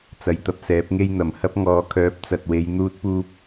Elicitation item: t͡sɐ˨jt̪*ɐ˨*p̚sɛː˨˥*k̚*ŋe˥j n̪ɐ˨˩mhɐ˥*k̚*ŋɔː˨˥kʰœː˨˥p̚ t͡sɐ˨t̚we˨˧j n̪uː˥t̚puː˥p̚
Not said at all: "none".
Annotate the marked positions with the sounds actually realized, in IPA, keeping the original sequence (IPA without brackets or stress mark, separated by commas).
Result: ɐ˧, p̚, p̚